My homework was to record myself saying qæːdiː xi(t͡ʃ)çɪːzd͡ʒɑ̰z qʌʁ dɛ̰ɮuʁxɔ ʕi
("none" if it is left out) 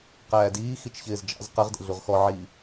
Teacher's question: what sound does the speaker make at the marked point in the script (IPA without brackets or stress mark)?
t͡ʃ